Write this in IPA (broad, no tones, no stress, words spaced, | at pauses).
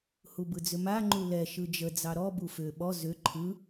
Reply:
hubɯd͡zʏma ŋ͡ǃulɛ ʃɯd͡ʒəd͡zɑ ɾɔ bufʏ ɓɔ zʏ ǃʰɯ